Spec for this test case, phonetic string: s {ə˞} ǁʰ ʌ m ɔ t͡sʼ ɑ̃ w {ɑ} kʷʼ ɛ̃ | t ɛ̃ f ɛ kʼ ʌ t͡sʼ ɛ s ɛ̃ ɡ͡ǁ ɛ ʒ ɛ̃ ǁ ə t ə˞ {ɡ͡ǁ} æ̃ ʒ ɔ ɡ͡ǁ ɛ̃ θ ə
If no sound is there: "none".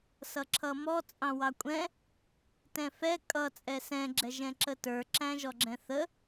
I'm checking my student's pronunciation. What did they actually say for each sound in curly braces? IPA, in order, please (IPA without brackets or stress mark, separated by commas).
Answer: ʌ, ɑ, ǁ